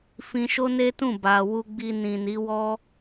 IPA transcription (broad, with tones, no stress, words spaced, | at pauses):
fĩ˧ʃo˦ne˦tũ˦˨ ba˨ wu˨ɡ͡bi˨ nĩ˨ni˨˦ wɔ˦